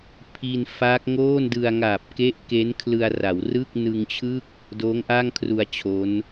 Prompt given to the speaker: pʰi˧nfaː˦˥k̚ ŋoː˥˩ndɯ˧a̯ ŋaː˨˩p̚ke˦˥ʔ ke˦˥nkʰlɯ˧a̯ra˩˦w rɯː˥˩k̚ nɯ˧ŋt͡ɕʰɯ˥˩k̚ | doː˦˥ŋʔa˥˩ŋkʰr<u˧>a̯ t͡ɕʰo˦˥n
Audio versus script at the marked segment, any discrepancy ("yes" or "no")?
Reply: no